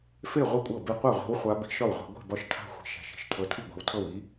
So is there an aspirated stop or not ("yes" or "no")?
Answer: yes